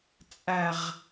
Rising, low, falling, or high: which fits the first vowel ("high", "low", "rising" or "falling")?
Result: falling